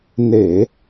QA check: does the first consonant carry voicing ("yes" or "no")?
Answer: yes